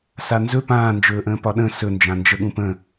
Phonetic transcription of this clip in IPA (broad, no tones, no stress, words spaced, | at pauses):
sanzɵ pãːnd͡ʒɵːʔə̃ː pɒɗə̃ sɵnd͡ʒãnd͡ʒə ɠũpə̃